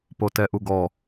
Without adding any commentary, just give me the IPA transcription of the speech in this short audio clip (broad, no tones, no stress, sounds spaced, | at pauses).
p o t ɛ ʔ u ɡ ɔ